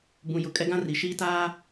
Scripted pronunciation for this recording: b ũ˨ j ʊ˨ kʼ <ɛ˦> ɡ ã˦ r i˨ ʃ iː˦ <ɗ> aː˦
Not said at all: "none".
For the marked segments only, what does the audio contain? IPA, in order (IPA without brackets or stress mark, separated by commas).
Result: ɛ˦, t